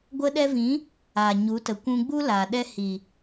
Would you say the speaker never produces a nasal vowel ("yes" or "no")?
no